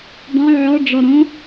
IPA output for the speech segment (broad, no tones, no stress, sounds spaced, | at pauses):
dˤ õ ʕ ɔ ɖ͡ʐ ɔ ɾ õ